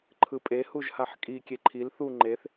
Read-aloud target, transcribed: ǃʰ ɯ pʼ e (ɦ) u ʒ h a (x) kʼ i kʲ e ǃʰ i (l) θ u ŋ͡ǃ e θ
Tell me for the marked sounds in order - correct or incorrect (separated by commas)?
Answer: incorrect, incorrect, correct